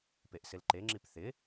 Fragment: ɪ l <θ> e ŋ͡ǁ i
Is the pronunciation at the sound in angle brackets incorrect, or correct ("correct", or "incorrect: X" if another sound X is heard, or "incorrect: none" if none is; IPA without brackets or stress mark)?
incorrect: ǃ